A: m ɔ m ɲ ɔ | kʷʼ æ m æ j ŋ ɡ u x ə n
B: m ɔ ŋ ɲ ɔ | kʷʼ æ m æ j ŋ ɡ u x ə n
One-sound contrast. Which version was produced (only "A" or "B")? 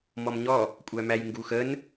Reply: A